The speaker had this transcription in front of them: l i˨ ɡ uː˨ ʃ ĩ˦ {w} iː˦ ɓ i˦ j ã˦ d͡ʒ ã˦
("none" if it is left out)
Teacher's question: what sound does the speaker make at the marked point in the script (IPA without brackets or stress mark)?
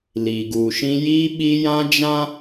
j